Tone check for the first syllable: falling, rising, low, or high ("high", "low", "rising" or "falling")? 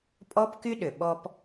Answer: high